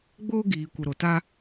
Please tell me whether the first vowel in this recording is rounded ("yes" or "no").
yes